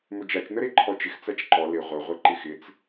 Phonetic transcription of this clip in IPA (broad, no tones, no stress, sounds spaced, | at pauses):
m ɵ d͡ʒ a t͡ʃ n ə ɾ e ǃʰ ɔ t͡ʃ ɪ x t͡s a t͡ʃ ǃ ɔ l ɪ ʁʷ ə ʁʷ ɪ ǃ ɪ x ɪ t͡s